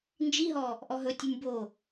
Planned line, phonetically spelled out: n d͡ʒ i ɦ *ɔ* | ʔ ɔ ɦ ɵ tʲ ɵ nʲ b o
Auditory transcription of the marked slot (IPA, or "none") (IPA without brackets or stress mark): ɔ